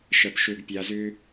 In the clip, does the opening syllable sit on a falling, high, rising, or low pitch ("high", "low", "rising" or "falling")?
low